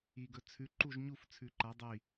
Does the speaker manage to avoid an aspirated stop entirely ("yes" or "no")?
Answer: no